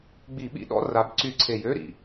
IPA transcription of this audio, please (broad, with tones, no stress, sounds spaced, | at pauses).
ɡ͡b i˧˩˧ ɓ ḭ˧˥˧ ɗ ɔ̰˧˥˧ r a˨˦ b ǀ y˧˩˧ ǀʰ e˨˩ j ø˧˥˧ ɾ ḭ˨˩